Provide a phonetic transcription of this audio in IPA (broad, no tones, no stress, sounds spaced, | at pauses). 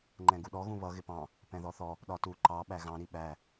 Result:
ŋ͡ǃ ɛ̃ ɡ u ɗ ɔ ɣ ũ β ʌ ɣ ɪ p ɑ̃ | p ɛ̃ ð ɔ θ ɔ | ɗ ɒ t u ǃ ɑ ɓ æ ɣ ɑ̃ ɾ i ɓ æ